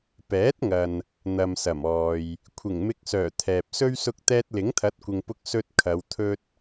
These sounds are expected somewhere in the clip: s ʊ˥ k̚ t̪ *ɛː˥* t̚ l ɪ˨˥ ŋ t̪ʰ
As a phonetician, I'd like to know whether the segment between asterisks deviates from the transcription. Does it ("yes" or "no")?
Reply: no